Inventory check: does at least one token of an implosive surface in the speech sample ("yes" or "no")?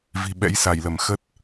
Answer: yes